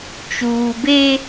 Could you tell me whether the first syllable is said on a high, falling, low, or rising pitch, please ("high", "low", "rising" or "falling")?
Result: low